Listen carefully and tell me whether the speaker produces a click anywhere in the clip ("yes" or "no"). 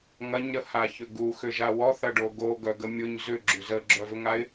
yes